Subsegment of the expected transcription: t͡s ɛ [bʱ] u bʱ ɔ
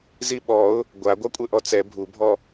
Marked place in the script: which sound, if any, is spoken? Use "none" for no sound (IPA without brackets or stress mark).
bʱ